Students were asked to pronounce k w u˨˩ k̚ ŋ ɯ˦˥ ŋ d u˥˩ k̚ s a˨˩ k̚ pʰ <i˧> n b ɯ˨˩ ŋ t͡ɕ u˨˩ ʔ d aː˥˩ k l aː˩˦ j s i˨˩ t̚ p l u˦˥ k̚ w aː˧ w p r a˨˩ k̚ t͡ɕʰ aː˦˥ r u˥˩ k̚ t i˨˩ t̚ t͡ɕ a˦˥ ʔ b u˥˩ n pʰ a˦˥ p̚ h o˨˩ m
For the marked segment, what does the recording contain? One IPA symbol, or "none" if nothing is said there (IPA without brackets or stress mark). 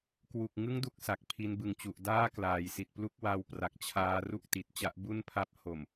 i˧